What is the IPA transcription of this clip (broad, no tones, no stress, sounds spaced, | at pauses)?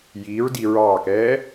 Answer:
j iː ɹ d i ɹ ɑː k ɛː